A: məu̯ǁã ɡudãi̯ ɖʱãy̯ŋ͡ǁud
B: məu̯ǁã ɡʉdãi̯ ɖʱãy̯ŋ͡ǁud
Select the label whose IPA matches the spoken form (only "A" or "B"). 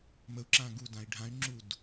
A